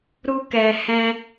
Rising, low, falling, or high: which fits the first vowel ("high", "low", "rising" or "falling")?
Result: high